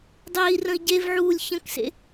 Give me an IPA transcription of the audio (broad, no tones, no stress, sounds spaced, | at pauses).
dˤ eː i̯ r ə̃ i̯ ɟ e v ʕ uː lʲ ç ə̃ k s ḛ